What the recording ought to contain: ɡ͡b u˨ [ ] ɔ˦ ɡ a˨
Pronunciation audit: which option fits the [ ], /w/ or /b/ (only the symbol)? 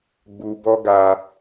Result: b